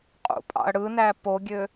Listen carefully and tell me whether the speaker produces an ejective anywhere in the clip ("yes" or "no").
yes